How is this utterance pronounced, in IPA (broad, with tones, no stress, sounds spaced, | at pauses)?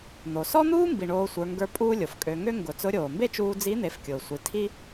n̪ o˩ s ɔ˥ n̪ uː˥ m b i˩ ɳ oː˧ sʷ ə˞˩˧ ŋ ɡ ə˞˧ pʼ uː˥ lʲ o˩ f kʼ ø˧ ŋ ø˥ ŋ ɡ ʊ˩˧ t͡s ʊ˧˥ ɾʲ oː˩ m b e˥ t͡ʃ uː˧ d͡z i˧˥ n̪ e˩˧ f kʲ ʊː˩ sʷ i˩˧ tʰ i˥